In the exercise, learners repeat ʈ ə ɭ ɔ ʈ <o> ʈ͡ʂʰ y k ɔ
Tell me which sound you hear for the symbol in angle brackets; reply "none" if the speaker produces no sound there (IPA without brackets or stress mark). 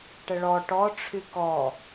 ɔ